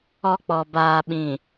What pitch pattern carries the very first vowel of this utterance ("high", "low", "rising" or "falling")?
high